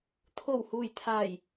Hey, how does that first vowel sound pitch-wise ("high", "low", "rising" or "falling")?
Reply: low